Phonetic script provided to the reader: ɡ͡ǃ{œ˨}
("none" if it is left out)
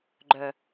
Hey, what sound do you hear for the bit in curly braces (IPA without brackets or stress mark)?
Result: œ˨